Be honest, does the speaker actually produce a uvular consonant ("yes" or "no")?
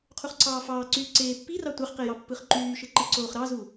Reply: yes